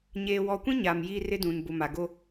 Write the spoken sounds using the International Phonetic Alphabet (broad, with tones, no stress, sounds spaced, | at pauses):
ɲ eː˨ w ɔ˨ kʷ ĩ˦ ɲ aː˨ m j iː˦ r ɪ˦ d ũ˨ n b ʊ˨ m a˨ ɡ o˦